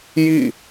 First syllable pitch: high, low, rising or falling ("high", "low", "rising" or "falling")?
falling